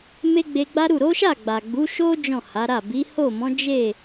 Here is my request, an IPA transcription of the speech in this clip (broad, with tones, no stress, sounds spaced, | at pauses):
m e˦ ɡ͡b e˧ ɡ͡b a˦ ɾ u˦˨ ɾ o˨˦ ʃ a˦˨ ɡ͡b a˨ ɡ͡b u˨˦ ʃ o˦ d͡ʒ ɔ̃˦˨ h a˨˦ ɾ a˦˨ b i˨˦ h o˦˨ m ɔ̃˨˦ d͡ʒ e˦˨